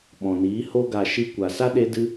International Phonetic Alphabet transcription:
ɓɔ̃˨niː˨˦ho˦ ɡa˨ʃi˧ kʷa˨sa˦ɗe˧dɨ˧

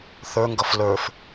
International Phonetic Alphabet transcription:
θə˞ŋɡʌf lə˞f

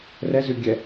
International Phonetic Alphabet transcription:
rɛzʉɡʲɛ

